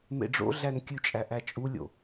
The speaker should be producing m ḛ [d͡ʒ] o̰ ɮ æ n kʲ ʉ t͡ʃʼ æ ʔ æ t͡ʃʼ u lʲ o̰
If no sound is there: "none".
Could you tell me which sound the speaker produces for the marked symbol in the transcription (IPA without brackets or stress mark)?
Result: ɖ͡ʐ